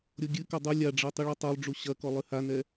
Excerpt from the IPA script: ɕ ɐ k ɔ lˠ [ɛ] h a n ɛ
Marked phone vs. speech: incorrect: ɨ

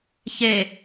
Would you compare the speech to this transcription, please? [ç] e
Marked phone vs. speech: correct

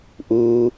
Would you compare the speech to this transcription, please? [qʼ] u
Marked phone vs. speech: incorrect: ʔ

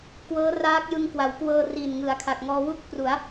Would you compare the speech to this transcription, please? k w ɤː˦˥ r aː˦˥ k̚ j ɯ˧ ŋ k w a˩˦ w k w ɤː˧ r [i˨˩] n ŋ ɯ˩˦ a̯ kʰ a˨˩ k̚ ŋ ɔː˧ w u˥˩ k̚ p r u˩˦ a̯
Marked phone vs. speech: correct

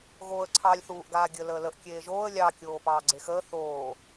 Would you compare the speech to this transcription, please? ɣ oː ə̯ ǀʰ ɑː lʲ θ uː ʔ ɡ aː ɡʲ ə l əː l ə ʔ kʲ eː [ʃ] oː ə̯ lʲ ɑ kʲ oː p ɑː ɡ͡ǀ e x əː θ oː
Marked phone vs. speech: incorrect: ʒ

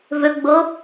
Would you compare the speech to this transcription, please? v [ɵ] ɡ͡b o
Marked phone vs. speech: correct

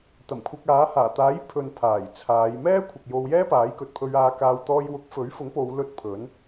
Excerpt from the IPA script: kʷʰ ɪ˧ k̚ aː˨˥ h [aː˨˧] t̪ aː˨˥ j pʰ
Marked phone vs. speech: incorrect: aː˨˩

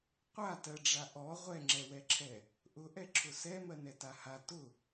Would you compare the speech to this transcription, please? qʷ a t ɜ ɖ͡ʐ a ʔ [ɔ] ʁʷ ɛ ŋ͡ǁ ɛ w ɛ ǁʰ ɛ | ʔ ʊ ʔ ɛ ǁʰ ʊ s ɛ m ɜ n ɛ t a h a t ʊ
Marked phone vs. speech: correct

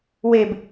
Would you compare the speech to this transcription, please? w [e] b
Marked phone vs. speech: correct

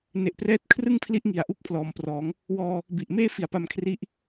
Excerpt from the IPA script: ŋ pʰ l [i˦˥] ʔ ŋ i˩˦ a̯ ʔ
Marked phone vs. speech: correct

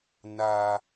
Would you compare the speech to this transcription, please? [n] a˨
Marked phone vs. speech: correct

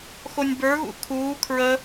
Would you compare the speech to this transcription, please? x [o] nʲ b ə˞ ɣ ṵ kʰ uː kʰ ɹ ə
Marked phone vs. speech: correct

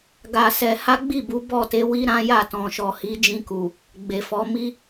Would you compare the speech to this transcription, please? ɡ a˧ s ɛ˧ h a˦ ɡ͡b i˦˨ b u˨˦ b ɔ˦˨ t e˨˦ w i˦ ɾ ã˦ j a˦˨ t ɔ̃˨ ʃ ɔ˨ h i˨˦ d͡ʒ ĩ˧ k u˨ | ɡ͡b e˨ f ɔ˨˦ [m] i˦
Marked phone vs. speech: correct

